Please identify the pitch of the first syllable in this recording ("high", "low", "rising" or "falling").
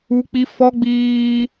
high